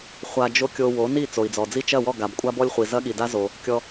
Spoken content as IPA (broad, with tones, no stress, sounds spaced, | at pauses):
χʷ a˧ d͡ʒ o˥ kʲ o˧ w o˩˥ n i˥˩ t͡s o˩ i̯ d͡z ɔ˩ d͡z i˥˩ t͡ʃ ɐ˥˩ w ɔ˥˩ ɡ a˩ b kʷʼ a˥ b ɔ˥ lʲ χʷ i˩ z ɐ˥ ɠ i˩ d a˥ z o˩ | kʲ ɔ˧